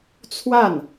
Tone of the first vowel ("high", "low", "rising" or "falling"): falling